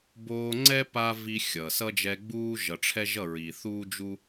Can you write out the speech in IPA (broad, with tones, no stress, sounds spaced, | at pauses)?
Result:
b oː˧ ŋ͡ǀ ɛ˦ p a˦ v i˧ xʲ ʌ˨ s ʌ˦ d͡ʒ ɛ˧ ɡ͡b uː˦ ʒ ʌ˨ ʈ͡ʂʰ ɛ˦ ʒ ʌ˦˨ ɹ i˨ θ uː˦ d͡ʒ u˦